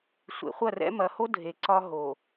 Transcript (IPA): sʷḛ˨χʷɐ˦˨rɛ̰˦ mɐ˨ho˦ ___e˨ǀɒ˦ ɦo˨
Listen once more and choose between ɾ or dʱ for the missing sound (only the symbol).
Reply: dʱ